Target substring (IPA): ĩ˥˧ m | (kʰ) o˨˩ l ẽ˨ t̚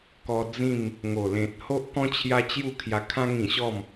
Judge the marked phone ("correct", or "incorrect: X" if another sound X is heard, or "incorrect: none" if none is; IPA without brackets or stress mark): incorrect: ŋ